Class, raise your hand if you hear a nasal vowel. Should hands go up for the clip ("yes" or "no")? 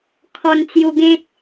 yes